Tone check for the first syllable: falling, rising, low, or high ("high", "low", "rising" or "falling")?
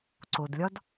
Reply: low